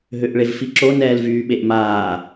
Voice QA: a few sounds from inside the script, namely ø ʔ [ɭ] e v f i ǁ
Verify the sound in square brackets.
correct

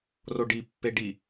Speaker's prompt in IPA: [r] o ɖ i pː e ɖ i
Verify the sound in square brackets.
correct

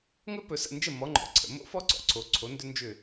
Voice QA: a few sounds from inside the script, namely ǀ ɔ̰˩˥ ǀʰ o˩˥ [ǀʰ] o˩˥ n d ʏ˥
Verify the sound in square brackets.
correct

